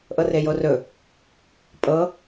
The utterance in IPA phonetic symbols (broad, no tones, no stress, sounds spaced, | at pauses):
ʔ ɤ r e j o r ɵ | pʼ ɤ